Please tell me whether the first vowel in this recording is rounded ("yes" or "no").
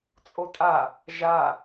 yes